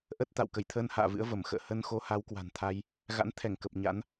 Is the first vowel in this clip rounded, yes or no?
no